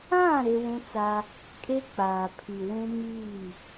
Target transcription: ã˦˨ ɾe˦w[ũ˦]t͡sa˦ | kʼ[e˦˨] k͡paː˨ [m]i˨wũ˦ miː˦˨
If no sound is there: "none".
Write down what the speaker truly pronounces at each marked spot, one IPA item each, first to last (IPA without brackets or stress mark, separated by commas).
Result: ũ˦, e˦, pʰ